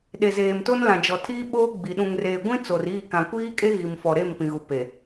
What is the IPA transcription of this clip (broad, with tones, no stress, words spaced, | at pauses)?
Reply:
ɗe˨zeː˨mto˦nlã˨ d͡ʒɔ˨ tʰiː˦ɓoː˦ ɡ͡bi˨ ɗũ˨ŋreː˨ɡʷĩ˦ t͡so˨riː˦˨kã˨ kʷiː˦kʼe˦ ɣi˨mfɔ˨ɾe˦˨m pĩ˨ɣu˨ pe˨